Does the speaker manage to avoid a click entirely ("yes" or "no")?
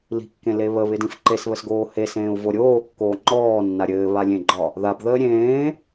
no